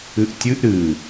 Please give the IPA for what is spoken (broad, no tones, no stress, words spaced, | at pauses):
ɨʔtʲɨʔ ɾɨ